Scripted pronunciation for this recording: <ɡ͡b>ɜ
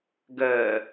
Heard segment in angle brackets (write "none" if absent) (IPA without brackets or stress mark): ɡ